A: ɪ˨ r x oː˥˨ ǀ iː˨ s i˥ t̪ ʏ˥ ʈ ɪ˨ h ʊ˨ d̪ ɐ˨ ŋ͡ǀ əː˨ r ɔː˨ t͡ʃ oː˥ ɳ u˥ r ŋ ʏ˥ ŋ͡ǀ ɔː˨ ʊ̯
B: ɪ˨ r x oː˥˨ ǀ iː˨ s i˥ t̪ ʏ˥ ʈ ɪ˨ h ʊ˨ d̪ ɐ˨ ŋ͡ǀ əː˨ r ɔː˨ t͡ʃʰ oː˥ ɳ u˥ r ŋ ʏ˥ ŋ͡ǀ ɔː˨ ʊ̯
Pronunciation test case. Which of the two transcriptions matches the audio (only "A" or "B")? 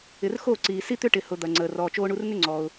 A